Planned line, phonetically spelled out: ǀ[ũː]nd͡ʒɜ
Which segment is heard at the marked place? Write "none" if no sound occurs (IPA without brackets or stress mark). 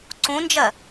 ũ